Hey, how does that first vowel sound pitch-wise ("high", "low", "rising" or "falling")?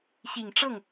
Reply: low